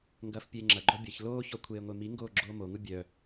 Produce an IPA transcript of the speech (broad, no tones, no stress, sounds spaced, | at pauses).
ŋ ɡ ɐː f pʲ eː ŋ͡ǁ ɐ ɡ͡ǃ ɔ bʲ ɐ ç l oː ç ɔ kʷʰ eː ŋʷ e m i ŋ ɡ oː ɡ͡ǁ oː m o ŋ u bʲ œ